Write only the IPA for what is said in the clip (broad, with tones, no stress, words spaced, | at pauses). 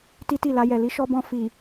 ti˦ti˦˨la˧jɛ˨ li˨˦ʃɔ˧bɔ̃˧ fi˨